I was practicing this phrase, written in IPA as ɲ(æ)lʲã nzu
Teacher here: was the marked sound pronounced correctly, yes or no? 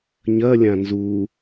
no